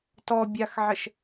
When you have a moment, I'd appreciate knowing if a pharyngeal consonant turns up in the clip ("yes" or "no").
yes